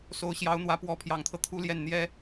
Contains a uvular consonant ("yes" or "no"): no